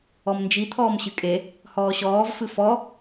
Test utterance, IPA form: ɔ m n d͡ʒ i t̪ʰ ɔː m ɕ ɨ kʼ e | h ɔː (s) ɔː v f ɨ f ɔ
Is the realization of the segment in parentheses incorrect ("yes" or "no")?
yes